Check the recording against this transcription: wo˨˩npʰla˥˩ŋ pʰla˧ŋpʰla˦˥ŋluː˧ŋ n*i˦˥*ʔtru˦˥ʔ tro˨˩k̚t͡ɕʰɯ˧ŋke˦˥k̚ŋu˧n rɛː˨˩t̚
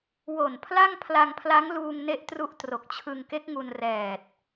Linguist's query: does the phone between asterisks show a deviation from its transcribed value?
yes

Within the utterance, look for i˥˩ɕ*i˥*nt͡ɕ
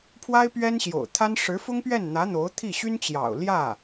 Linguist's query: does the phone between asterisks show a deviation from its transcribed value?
yes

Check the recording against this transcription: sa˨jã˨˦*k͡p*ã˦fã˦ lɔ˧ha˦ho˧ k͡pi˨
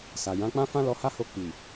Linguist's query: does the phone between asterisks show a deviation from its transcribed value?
no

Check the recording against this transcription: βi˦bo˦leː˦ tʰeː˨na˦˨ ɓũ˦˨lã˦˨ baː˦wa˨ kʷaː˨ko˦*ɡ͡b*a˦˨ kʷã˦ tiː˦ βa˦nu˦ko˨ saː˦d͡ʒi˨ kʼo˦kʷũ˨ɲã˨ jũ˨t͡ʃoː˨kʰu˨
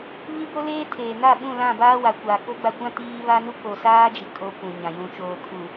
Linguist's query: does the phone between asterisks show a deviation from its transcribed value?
no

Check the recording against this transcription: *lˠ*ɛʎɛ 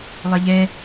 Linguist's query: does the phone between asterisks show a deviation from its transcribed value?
no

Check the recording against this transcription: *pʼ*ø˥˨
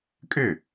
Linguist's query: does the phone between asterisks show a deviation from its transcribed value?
yes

